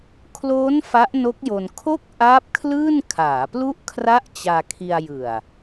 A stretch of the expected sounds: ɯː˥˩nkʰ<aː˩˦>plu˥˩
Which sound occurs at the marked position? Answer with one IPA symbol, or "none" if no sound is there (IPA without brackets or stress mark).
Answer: aː˩˦